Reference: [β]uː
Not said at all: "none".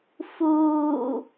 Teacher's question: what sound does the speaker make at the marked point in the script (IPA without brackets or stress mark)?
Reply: f